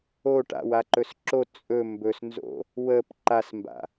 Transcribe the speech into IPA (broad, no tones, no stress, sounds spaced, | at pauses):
o ʈ a̰ w a ǃ ɵ s ǁ o t͡sʼ ɵ m b ɵ s n z o̰ | w ə p ǃ a s m b a̰